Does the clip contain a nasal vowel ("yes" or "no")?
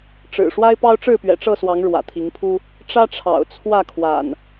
no